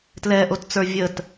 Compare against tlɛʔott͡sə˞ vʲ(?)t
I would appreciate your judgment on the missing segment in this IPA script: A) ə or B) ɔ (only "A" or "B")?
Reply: A